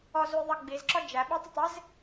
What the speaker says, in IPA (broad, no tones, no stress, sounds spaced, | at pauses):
ɔ z u j ðˤ ʌ ɡ͡b i z ǁ ɔ d͡ʒ æ ɓ ɛ tˤ ɪ tˤ ɪ z